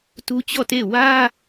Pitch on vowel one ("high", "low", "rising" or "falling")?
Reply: high